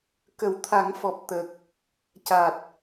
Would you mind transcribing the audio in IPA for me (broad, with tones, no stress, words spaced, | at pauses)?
kə˨˩˦wt̪ʰa˨˩˦ŋfɔ˨˩p̚ t̪ə˨˩k̚ | ca˨˩t̚